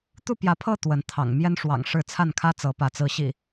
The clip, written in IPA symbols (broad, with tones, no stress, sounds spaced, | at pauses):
t̪ u˥˨ p j ä˨˦ pʰ ɤ˥˨ t̪ w ə˨˦ n t̪ʰ ɑ̰˨˩ ŋ m j ɛ˦ n ʂ w ɑ̰˨˩ ŋ ʂ ɻ̩˥˨ t͡sʰ a˥˨ n kʰ ä˦ t͡s ɤ˨˦ p ä˨˦ t͡s ɹ̩˨˦ ɕ ḭ˨˩